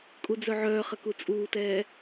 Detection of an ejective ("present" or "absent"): present